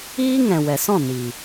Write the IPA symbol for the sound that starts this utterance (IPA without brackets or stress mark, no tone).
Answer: iː